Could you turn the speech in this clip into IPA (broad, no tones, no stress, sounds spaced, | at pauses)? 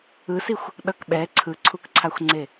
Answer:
ɯ s i xʷ | ɗ ʌ k ɓ ɛ ǀʰ ɯ ǀʰ u k ǀʰ a xʷ ŋ͡ǀ e